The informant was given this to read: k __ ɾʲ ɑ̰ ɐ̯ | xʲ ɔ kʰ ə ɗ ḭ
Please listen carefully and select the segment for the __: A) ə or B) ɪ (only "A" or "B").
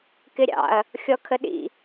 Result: B